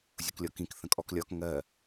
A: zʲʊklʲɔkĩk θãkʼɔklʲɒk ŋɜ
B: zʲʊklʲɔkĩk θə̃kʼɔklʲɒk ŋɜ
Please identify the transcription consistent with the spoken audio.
B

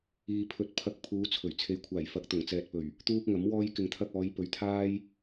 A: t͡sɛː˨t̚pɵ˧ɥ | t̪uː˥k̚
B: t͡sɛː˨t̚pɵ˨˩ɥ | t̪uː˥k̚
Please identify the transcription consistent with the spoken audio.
B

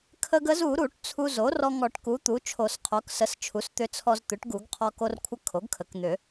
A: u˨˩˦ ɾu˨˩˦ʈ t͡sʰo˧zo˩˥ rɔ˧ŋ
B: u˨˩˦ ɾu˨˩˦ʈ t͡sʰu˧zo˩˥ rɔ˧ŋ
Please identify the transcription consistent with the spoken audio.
B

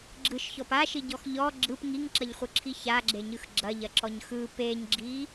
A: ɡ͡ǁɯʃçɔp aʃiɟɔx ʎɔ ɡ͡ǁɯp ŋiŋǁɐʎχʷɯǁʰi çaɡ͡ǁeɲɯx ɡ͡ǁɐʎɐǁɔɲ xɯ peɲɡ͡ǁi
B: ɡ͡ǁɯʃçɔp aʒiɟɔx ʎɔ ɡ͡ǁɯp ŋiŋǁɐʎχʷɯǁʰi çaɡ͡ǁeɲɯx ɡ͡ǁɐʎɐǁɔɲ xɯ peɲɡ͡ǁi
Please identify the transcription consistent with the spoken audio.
A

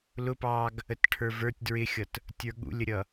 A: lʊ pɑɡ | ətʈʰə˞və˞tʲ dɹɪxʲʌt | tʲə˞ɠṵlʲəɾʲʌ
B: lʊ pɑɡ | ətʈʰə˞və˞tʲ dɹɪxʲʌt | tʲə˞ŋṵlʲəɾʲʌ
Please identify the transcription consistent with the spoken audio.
A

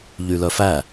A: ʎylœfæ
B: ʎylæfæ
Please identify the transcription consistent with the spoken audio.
A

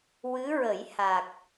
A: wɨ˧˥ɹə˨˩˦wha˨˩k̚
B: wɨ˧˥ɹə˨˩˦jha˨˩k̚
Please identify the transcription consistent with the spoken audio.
B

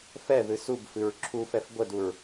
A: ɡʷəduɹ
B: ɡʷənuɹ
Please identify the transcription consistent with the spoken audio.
A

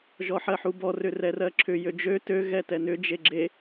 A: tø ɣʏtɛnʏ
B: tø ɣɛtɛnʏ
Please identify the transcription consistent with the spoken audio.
B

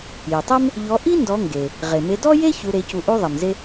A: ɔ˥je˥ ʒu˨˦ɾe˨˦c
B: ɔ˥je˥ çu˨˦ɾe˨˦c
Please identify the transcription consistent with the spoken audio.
B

